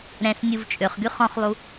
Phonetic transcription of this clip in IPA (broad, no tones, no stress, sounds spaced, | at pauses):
ɾ ɛ̃ s nʲ u v t͡ʃʼ ø χ ɡ y χ ɔ̃ χ lˠ u